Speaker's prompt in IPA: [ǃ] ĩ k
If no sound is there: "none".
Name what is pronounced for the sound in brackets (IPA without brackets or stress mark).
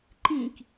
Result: ǃ